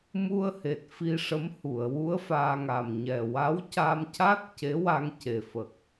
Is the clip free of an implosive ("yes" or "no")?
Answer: yes